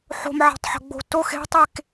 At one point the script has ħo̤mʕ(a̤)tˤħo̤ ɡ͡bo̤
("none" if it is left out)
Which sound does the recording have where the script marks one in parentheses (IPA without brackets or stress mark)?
a̤